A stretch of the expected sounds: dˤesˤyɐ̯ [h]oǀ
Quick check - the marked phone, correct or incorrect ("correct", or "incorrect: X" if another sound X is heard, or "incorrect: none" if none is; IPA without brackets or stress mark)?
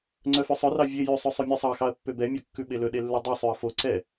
incorrect: f